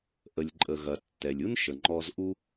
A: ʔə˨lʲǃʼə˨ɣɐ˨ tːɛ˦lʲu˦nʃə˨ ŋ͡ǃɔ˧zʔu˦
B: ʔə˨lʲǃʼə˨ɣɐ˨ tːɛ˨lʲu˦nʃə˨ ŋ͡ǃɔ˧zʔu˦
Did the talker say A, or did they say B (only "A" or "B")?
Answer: B